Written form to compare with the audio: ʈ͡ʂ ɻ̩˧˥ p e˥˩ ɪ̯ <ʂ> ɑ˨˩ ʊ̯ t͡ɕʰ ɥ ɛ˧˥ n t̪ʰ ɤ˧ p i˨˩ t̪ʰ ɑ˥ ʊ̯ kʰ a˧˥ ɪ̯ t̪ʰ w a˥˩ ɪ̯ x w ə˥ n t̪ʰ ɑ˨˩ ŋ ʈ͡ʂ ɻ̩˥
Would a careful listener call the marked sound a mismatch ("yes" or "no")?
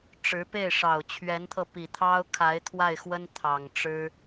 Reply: no